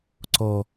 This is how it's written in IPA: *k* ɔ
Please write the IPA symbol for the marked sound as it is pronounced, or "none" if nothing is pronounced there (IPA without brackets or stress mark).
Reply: ǀ